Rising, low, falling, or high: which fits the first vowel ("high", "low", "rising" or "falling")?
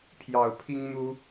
low